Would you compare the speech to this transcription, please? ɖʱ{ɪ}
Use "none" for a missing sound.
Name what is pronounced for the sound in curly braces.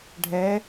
ɛ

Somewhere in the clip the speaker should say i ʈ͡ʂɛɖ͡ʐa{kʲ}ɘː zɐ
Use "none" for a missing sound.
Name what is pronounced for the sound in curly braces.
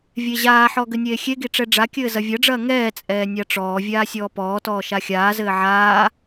kʲ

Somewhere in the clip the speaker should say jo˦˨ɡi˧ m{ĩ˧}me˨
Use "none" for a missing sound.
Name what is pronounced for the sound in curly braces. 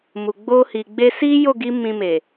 ĩ˧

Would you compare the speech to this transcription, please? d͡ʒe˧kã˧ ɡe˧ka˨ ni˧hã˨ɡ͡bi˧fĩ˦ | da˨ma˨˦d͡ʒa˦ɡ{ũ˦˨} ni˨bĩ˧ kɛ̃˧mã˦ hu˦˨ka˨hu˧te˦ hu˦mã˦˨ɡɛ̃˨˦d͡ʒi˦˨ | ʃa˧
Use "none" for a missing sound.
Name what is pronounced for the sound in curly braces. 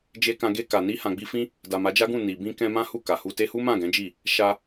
ũ˦˨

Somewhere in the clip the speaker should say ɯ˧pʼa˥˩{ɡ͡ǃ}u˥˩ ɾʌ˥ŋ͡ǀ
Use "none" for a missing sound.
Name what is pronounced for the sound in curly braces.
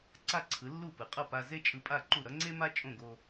ǃ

